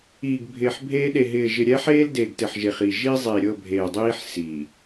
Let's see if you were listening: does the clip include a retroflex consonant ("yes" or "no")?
no